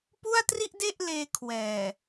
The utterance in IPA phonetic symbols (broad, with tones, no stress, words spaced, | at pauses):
pu˥˩a̯tri˥˩ʔde˥˩ʔ leː˧kʰwɛː˨˩